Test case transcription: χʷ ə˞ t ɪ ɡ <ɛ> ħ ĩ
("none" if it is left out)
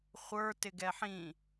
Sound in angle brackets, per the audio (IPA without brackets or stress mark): ɛ